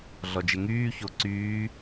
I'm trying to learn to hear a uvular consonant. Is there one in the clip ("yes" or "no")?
no